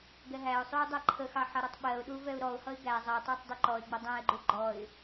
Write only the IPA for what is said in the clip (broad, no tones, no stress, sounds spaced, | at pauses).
ɡ ɛ ɦ æ ʊ̯ sˤ u ɪ̯ dˤ æ ǃʰ ə x ɑ ħ ʌ ɾ ʌ tˤ ɓ ɜ ʊ̯ ɗ u v ɛ ʊ̯ ɾ ɔ ʊ̯ h ʌ ɪ̯ ɡ æ zˤ ɜ tˤ æ tˤ dˤ u ǃ ɔ ɪ̯ ɡ͡b ʌ dˤ æ̃ ɪ̯ ɡ͡ǃ u ɡ͡ǃ ɔ ɪ̯